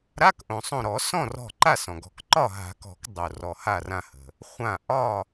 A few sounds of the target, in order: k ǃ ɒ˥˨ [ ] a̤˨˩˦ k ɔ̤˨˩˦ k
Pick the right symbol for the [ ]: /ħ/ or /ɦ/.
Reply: ɦ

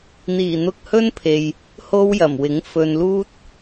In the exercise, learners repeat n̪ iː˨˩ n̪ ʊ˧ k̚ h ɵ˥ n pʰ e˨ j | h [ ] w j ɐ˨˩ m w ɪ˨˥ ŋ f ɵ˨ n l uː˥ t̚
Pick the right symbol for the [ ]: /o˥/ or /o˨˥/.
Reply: o˥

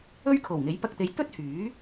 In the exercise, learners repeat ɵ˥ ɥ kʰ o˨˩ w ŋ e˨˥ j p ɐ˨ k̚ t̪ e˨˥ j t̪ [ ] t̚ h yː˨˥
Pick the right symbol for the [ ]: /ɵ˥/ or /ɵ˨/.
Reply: ɵ˥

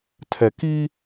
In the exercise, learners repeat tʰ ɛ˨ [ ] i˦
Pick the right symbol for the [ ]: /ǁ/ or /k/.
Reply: k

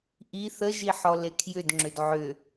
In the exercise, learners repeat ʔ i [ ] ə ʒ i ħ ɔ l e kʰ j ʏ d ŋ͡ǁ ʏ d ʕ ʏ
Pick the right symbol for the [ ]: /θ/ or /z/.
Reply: θ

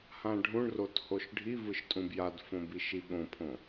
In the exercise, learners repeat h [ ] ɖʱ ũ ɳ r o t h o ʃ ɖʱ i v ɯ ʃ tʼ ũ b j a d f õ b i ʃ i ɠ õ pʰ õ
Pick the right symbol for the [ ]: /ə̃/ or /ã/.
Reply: ã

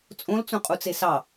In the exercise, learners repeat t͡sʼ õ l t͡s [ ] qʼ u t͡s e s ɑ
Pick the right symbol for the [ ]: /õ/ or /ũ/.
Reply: ũ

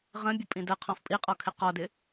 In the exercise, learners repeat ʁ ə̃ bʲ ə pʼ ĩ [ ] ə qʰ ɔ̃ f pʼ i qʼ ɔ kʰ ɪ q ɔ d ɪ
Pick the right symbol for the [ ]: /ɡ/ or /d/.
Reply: d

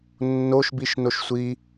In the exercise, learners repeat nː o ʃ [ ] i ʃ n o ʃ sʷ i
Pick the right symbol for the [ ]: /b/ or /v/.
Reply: b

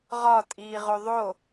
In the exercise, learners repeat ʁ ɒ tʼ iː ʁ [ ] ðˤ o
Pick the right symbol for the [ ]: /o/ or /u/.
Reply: o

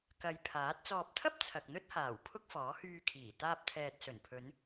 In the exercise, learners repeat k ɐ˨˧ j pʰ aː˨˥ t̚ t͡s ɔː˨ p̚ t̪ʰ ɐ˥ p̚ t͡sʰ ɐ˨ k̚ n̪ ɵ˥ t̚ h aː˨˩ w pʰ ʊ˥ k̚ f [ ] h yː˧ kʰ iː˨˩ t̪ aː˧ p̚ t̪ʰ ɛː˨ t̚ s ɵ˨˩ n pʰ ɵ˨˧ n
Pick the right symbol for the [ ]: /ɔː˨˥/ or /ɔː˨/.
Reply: ɔː˨˥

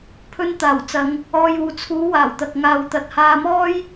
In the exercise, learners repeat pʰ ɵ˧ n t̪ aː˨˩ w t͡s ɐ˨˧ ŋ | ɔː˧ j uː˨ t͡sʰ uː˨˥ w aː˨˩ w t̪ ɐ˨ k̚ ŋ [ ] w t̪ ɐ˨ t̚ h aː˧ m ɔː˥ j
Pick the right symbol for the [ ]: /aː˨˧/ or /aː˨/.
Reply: aː˨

